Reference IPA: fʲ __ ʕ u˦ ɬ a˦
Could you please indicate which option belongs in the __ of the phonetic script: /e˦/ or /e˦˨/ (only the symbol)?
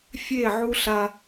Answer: e˦˨